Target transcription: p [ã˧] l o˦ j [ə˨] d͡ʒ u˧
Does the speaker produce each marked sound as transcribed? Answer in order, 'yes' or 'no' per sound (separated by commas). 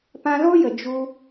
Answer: yes, yes